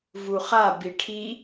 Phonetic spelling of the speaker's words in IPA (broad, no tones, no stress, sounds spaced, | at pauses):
v u χ a b i ʈʰ i